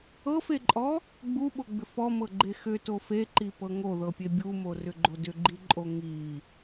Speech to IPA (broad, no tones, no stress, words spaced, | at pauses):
ɤfeǃʼɔ | ɡ͡buɓoɡ͡bʏf ɔmɤɡ͡ǃe xʏto feǃipɤ ŋoðɤpʲe bʲumorʏɡ͡ǃo dʏɡ͡ǃiǃʼo ŋi